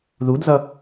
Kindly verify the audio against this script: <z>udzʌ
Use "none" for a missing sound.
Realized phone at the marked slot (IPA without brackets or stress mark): ð